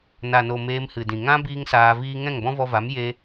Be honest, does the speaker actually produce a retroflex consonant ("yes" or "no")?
no